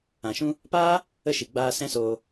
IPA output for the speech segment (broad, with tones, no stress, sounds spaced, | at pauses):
ã˨ ʃ ũ˦ | p aː˦ | ə˦˨ ʃ i˨ ɡ͡b aː˧ s ɛ̃˦ s oː˧